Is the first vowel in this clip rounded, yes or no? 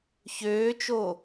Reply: yes